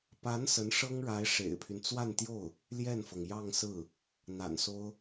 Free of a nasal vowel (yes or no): yes